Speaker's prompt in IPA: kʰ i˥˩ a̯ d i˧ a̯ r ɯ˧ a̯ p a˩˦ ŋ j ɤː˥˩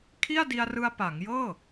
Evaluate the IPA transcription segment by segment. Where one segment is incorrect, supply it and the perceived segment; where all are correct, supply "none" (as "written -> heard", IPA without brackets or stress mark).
none